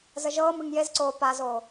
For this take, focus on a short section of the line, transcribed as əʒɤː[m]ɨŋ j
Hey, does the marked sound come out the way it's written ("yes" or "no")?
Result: yes